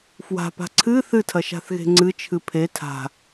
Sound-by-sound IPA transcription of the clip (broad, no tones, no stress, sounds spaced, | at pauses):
f w a̤ p a̤ ǀʰ ɨ θ ɨ tʰ ɐ ʃ a̤ θ ɣ e̤ ŋ͡ǀ ɨ t͡ʃʰ ɨ pʰ e tʰ a̤